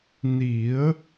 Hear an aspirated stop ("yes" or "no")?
no